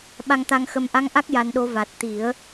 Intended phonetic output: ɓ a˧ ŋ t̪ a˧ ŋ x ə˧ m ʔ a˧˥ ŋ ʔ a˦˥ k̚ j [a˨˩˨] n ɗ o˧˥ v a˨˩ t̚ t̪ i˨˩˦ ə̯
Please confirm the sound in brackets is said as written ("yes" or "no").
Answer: no